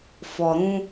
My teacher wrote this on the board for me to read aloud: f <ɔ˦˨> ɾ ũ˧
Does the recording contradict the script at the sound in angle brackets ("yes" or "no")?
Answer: yes